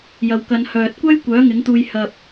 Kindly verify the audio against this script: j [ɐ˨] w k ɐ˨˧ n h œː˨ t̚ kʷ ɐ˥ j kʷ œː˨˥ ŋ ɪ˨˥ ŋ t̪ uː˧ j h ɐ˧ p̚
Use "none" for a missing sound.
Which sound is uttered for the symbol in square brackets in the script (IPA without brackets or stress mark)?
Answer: ɐ˨